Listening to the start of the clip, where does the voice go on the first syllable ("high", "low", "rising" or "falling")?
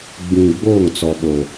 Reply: low